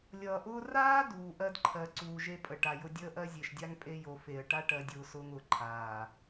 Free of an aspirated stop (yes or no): no